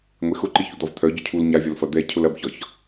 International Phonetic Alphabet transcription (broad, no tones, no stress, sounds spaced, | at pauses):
ŋʷ e x ʊ ǃ i ç u d̪ ɒ v t̪ʰ œ ɟ ʊ cʰ u l ɲ a vʲ ɒ l f ɐ d̪ ɛ cʰ ʊ l ɐ b ç ɒ ç